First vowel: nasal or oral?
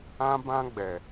nasal